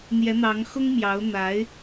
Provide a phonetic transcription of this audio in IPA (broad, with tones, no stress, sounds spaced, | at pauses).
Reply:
n̪ j ɛ˧˥ n̪ ɑ˧˥ ŋ x ʊ˥ ŋ m j ɑ˧˥ ʊ̯ n̪ a˧˥ ɪ̯